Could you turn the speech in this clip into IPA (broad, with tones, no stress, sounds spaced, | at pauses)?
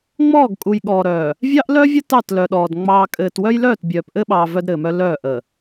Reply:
ŋ͡m ɔː˦˨ ɡ kʼ u˨ j ɠ ɔː˨ ɾ œː˨ | vʲ ɑ˦ ʔ l œ˦ vʲ ə˦ t ɑ˦˨ t l œ˨ ɗ ɔː˨ d ŋ͡m ɑː˨ kʼ ɘː˨ t w œ˦ j l œː˦˨ t bʲ œː˨ p ʔ ɘ˦ ɓ ɑː˨ v œ˦ d ɾ ɘː˨ m œ˦ l œː˦˨ ʔ ə˨